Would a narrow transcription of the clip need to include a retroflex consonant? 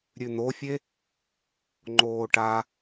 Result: yes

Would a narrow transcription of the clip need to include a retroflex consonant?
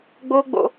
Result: no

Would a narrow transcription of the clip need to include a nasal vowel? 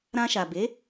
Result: yes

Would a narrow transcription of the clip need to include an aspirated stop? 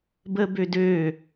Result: no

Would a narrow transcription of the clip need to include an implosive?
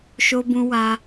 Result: no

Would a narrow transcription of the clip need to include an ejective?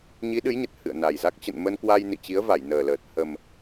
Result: no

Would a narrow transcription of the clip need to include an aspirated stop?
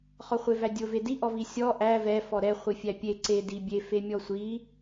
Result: no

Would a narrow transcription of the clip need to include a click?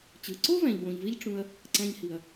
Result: yes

